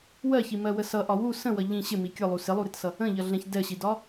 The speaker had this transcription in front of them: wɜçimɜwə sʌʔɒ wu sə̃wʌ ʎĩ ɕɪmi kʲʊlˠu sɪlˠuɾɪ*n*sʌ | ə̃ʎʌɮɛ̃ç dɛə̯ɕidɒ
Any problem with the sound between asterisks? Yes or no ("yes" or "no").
yes